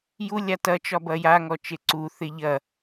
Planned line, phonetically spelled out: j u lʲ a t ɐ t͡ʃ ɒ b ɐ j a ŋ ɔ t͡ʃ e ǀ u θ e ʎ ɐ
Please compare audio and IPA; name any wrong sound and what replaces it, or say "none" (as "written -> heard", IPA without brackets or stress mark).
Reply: none